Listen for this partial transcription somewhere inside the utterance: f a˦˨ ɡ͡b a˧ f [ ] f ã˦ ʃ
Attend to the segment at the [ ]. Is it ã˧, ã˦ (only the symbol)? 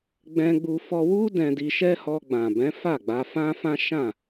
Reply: ã˦